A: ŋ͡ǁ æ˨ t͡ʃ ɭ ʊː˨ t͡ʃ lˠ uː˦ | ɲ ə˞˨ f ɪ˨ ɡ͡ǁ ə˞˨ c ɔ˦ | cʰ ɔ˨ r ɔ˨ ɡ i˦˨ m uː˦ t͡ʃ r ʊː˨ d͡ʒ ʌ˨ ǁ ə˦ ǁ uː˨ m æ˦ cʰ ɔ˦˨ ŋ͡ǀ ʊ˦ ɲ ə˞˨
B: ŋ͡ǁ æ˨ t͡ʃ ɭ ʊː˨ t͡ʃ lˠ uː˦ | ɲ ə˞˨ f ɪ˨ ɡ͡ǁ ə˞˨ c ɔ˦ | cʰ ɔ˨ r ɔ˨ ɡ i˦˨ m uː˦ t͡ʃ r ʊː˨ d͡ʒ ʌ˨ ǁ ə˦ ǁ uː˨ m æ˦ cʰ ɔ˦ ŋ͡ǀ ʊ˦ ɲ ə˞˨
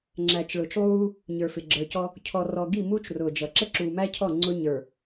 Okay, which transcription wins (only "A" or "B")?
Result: A